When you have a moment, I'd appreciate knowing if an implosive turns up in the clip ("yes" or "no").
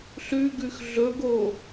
no